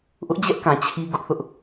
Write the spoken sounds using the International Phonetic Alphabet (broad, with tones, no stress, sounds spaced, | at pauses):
ʔ ʊ˦ ʔ d͡ʑ ɛ˦ ʔ k ã˨ t͡ɕʰ i˦ ɡ ʊ˦ ʔ θ ʊ˦ ʔ